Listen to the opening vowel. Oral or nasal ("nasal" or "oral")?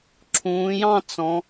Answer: nasal